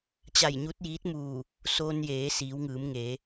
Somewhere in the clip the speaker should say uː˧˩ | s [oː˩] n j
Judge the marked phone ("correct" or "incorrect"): incorrect